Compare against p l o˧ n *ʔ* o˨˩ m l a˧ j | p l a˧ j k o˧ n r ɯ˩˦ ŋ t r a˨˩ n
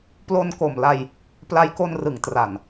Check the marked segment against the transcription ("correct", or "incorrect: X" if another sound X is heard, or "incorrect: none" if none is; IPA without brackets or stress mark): incorrect: k